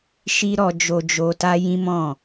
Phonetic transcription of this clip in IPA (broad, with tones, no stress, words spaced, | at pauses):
ʃi˦ ɾɔ˧d͡ʒo˧d͡ʒo˧ ta˦jĩ˦mɔ̃˦˨